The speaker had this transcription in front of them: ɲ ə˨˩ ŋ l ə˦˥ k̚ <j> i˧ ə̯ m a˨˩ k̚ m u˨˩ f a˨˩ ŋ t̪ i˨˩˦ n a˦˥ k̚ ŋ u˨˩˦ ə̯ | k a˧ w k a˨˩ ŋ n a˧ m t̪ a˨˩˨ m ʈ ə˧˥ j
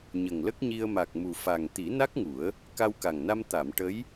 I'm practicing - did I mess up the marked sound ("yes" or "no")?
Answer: yes